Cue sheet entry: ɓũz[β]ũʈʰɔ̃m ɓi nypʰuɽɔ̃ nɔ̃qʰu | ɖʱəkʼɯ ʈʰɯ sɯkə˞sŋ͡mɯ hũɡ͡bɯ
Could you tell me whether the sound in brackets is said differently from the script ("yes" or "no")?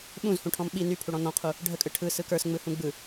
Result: yes